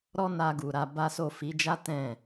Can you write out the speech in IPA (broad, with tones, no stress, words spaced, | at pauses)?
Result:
ɾɔ˦na˧ɡu˨ɾa˧ ba˦so˦˨ fi˨˦d͡ʒa˦ tɛ̃˦˨